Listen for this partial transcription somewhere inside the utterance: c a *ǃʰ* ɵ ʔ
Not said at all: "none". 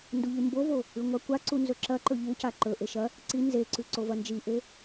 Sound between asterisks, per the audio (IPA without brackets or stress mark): ǃ